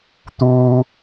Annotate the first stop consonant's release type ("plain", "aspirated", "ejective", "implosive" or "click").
plain